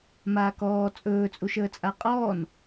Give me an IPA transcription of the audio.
m aː k ɔː t͡sʼ ɵː t͡sʼ u ʃ əː t͡sʼ a qʼ ɔː n

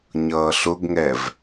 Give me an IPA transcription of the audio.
ɲ ʌː ɬ ʊ ɡ ŋ ɛ v

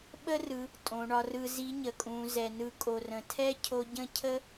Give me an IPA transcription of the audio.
ɓ ə˥ r ɯ˩˧ | tʼ õ˩˧ ɳ ɒ˧ r ɯ˧ z i˧˥ ɲ ə˩ kʼ ũ˩˧ z ɛ˩ n ɯ˧ kʼ o˩ r ə̃˩ tʰ ɛ˥ cʰ o˧ ɟ ə̃˥ cʰ ə˥

